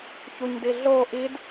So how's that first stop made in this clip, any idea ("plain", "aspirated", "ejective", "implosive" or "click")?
plain